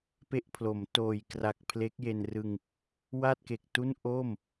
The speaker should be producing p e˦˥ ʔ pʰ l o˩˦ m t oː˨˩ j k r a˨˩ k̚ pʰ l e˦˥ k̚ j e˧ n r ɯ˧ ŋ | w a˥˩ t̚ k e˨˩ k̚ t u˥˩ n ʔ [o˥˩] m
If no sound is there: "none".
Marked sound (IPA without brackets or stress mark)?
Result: o˥˩